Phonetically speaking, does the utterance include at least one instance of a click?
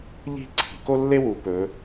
yes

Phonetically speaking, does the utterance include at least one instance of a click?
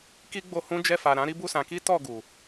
no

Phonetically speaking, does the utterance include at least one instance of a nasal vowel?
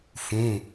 yes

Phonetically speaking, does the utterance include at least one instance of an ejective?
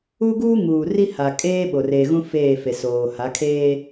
yes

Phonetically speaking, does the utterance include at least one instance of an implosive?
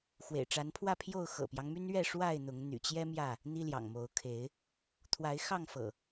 no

